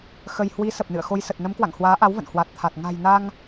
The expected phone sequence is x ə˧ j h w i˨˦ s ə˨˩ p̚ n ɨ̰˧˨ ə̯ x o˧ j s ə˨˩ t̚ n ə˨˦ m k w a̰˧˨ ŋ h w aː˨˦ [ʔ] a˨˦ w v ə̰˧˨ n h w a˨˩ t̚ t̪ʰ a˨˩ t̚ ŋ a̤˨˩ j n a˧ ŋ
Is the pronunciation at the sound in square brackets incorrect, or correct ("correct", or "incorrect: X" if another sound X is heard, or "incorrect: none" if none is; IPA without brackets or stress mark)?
correct